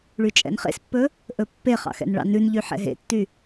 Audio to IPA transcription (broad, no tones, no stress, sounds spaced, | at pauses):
ɭ y t͡ʃʼ ɛ̰ n χ ḛ s pː ɵ | ʔ ɵ pː e χ ɑ̰ x ɛ̰ n ɭ ɑ̰ n ʉ n ʎ y ħ ɛ̰ ɦ ḛ tː y